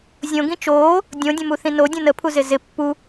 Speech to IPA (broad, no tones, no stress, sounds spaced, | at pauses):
zʲ õ ɡ ĩ t͡ʃ oː | dʲ õ dʲ ə̃ m u θ ĩ n o dʲ ũ n ə pʰ u z ɪ z ɪ pː u